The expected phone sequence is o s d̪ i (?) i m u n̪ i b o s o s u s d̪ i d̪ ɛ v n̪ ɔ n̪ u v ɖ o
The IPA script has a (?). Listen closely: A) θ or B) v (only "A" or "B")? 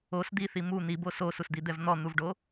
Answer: A